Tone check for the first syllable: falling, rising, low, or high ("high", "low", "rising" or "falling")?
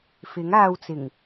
rising